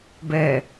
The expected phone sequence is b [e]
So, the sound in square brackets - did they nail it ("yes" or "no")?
no